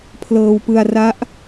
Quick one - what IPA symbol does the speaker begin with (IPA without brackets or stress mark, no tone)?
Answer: pʰ